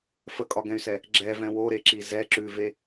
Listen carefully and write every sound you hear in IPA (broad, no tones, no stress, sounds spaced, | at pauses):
f ə kʼ ɒ ɡ ɛ̃ y̯ s ɛ | ɡ͡ǁ ɛ v ɛ̃ w o ɾ e ǁ i z ɛ ǁ ʉ v e